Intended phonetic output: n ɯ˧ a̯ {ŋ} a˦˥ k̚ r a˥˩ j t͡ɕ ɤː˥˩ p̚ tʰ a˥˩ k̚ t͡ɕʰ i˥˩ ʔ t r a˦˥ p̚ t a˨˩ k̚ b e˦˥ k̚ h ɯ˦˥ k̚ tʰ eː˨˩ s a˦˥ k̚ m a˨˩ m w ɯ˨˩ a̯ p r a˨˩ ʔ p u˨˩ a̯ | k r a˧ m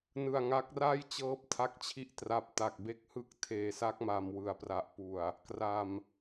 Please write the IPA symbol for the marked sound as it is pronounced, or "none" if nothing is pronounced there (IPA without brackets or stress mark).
ŋ